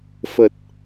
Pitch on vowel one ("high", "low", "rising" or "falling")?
low